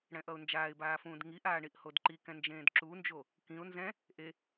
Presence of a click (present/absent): present